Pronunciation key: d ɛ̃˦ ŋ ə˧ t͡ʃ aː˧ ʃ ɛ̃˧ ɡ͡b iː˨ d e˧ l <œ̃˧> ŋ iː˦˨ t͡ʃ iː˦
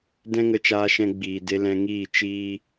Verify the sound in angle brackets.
incorrect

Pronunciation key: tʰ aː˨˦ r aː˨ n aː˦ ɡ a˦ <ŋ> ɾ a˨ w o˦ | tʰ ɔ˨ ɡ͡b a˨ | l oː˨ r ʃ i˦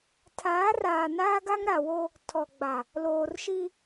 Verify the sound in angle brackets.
correct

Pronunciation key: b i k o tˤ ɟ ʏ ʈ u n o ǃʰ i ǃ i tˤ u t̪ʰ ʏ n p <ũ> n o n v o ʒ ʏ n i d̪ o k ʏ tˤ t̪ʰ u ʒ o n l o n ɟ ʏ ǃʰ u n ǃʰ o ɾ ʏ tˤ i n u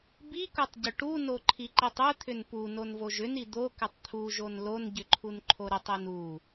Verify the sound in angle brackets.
incorrect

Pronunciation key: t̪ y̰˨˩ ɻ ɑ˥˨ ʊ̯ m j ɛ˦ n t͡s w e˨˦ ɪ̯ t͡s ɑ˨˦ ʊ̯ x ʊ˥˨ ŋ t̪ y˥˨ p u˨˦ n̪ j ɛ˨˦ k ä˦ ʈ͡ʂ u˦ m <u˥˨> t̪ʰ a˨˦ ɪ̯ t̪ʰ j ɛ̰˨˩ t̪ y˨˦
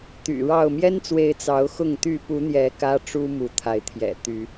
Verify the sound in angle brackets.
incorrect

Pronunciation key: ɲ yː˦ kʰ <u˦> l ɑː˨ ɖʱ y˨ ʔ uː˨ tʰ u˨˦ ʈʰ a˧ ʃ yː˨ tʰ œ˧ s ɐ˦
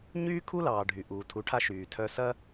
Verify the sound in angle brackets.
correct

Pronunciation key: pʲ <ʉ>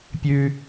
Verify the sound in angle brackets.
correct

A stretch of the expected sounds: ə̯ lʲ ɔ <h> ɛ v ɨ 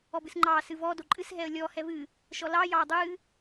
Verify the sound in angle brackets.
correct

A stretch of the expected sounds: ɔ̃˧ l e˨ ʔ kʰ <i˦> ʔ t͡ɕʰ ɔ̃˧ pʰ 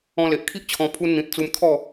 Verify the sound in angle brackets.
correct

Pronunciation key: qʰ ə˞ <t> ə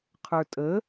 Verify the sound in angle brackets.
incorrect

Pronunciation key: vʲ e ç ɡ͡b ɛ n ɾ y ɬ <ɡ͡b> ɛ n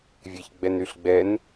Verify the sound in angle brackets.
correct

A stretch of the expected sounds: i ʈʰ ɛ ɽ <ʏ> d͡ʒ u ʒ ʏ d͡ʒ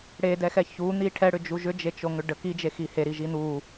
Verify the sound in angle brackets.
correct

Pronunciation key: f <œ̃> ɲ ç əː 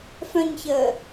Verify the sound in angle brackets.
correct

